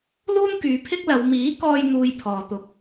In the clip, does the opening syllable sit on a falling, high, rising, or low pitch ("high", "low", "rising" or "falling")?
high